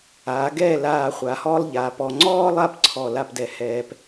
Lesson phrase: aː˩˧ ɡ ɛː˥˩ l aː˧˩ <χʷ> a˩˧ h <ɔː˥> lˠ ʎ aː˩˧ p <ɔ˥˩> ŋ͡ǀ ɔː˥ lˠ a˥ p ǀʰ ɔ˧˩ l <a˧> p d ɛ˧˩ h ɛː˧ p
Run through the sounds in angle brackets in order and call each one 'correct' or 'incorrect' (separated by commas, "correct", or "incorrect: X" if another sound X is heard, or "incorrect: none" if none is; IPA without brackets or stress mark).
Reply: correct, correct, incorrect: ɔ˧, incorrect: a˥˩